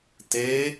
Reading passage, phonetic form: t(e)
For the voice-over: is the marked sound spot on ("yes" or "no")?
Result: yes